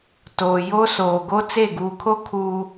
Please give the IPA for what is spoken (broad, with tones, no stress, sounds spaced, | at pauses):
t oː˨ j o˦ s oː˨ ɡ o˦ t͡s e˦˨ ɡ uː˨ kʰ o˦ kʰ uː˨